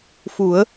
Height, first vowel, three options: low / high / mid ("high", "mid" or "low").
high